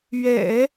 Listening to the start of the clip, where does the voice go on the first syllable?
low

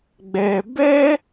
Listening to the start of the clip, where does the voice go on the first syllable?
low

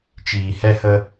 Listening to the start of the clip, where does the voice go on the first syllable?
low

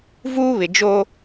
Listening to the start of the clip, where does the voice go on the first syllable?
high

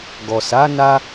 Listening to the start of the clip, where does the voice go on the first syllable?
low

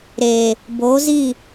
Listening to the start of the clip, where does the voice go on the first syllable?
low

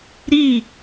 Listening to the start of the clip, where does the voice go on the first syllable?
falling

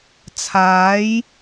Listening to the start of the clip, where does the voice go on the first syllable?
rising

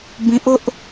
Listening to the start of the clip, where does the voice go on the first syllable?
high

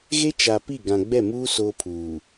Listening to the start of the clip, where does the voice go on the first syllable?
high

